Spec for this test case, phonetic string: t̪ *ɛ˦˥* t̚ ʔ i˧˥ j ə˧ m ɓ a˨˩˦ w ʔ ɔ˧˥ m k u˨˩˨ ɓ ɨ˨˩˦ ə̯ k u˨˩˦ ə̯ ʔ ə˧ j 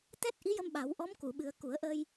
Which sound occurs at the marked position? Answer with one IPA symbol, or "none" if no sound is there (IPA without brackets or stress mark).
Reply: ɛ˦˥